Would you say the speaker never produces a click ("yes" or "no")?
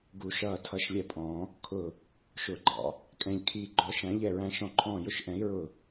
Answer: no